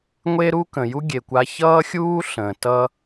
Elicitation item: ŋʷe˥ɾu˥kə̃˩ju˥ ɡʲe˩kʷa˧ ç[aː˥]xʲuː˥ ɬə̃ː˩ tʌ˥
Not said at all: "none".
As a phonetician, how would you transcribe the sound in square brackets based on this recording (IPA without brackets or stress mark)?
ʌː˥